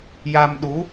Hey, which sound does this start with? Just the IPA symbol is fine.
j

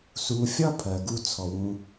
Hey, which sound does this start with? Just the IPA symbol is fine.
s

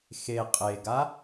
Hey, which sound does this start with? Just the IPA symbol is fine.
x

